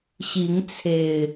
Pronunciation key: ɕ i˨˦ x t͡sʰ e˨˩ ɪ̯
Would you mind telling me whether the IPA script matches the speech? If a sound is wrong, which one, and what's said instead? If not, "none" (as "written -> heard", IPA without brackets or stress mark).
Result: x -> ŋ